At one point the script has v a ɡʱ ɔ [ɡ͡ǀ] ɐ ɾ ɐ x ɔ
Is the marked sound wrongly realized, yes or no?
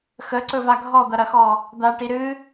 yes